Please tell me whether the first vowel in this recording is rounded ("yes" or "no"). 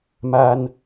no